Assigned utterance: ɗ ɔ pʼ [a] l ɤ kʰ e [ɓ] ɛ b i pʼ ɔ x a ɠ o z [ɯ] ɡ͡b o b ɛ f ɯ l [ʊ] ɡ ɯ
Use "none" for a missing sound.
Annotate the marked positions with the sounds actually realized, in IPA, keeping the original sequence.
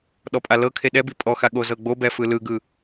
a, ɗ, ɤ, ɯ

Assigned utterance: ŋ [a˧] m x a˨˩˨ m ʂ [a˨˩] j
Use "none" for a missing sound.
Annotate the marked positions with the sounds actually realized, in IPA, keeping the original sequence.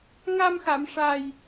a˧, a˨˩

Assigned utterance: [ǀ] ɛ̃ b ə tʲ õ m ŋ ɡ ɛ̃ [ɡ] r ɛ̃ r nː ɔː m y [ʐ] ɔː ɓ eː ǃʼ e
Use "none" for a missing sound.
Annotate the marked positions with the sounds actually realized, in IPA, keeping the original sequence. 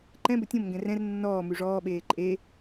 ǃ, none, ʐ

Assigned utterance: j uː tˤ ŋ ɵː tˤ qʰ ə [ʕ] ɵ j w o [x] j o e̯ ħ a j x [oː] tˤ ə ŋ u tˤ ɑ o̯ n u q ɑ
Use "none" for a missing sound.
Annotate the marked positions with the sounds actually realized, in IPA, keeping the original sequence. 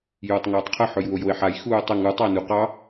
ħ, none, uː

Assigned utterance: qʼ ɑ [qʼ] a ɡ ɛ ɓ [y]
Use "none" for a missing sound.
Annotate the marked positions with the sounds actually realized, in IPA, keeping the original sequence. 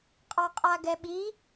qʼ, i

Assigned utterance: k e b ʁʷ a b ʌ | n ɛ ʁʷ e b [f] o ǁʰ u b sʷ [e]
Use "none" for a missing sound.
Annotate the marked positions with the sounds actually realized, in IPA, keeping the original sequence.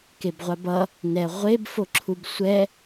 f, ɛ

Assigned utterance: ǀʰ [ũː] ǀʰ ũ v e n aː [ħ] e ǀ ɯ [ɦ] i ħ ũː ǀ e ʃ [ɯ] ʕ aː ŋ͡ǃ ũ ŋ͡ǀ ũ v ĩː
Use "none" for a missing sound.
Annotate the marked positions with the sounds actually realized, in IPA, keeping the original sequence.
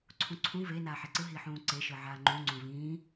ũ, ħ, ɦ, ɯ

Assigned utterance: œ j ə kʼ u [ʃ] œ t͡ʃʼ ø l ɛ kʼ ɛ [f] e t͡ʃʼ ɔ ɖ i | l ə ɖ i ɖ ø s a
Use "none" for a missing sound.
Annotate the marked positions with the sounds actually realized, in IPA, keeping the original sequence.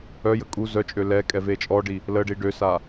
z, v

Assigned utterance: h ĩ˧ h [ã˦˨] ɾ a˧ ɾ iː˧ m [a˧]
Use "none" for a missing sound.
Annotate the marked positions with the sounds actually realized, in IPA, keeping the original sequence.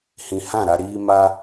ã˦˨, a˧

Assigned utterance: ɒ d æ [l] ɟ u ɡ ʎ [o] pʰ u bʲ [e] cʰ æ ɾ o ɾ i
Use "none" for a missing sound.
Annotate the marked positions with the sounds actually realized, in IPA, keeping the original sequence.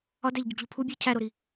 ʎ, o, e

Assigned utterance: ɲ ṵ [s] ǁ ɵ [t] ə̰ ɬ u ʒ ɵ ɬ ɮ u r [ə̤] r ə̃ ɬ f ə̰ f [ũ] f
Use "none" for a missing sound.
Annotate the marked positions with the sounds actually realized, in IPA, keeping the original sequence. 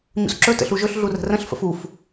s, t, ə̤, u

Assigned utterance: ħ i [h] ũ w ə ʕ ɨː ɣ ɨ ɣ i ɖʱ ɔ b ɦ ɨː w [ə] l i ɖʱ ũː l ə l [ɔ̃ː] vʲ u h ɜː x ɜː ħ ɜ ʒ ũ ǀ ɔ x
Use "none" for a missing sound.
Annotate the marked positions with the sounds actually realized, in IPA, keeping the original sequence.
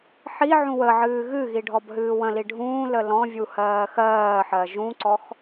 ʕ, ə̃, ɔ̃

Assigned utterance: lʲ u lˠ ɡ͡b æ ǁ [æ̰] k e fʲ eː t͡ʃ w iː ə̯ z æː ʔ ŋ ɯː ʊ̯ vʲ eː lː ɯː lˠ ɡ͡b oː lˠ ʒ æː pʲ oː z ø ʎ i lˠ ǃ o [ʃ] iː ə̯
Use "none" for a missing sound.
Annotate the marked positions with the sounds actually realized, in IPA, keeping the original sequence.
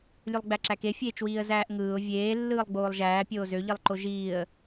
æ, ʒ

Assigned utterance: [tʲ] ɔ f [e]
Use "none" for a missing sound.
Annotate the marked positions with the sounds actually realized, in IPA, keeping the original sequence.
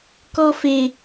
k, e

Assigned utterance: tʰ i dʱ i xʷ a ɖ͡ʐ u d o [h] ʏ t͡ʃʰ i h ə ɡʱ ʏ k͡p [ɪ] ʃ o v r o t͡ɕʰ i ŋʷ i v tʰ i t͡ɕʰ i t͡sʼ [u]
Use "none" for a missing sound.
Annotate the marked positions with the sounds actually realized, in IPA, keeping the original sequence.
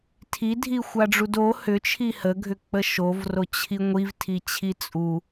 h, ə, u

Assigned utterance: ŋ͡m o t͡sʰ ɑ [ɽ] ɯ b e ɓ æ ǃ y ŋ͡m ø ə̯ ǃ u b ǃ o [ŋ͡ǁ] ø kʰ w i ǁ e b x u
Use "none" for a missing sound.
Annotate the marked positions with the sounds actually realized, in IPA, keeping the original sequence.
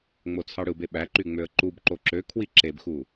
ɽ, ǁ

